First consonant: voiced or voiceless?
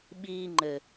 voiced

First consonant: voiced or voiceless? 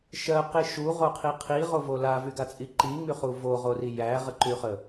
voiceless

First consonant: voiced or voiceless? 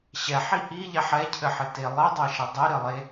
voiceless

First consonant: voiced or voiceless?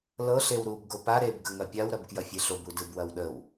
voiced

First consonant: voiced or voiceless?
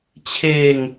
voiceless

